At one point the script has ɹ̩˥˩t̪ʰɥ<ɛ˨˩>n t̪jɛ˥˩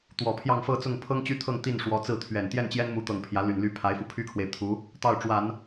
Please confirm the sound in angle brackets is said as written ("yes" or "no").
yes